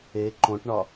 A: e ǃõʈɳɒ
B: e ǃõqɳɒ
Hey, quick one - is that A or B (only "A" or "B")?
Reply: A